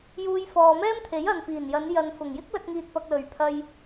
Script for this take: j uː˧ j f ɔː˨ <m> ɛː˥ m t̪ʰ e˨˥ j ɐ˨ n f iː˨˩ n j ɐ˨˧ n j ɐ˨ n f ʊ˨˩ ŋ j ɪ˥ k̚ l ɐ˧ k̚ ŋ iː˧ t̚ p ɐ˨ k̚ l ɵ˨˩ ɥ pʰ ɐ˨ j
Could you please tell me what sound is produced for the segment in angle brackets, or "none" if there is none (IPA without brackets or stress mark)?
m